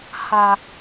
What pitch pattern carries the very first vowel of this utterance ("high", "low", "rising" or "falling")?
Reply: low